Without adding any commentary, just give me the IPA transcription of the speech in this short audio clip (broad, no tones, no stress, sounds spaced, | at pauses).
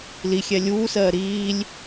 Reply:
l i xʲ ɛ lʲ uː s ɜː ɾ iː lʲ